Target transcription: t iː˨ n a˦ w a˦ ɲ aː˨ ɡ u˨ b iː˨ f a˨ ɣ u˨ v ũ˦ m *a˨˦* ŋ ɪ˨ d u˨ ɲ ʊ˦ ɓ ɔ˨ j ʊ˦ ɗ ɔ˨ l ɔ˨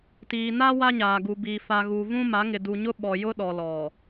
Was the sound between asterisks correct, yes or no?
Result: yes